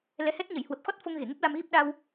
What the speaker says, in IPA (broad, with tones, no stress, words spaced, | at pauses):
lɛ˨˦hɛ˦˥t̚ ɲə˧˩jhwə˨˩p̚xɔ˦˥t̚ fo˧ŋ ɣe˧˩ŋə˦˥p̚la˧mɣi˦˥p̚ ɗa˧w